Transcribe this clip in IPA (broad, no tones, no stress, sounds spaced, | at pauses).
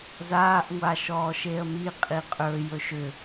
z aː ʔ ŋʷ a ʃ ɔː ʃ e ə̯ m i qʼ i qʼ ɵ j ɵ ʃ ʏ